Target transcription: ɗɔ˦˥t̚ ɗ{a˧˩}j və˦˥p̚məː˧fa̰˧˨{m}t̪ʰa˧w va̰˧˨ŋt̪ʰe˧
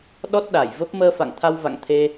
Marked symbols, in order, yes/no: yes, no

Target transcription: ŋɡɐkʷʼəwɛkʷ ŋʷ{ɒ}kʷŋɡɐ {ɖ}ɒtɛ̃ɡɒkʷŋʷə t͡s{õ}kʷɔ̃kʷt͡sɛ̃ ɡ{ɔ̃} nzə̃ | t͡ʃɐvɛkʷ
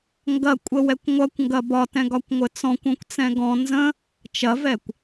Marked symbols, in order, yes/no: no, no, no, yes

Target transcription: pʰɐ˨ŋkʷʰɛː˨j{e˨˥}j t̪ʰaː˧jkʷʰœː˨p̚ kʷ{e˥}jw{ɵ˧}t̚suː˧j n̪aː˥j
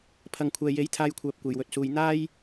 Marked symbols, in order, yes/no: yes, no, yes

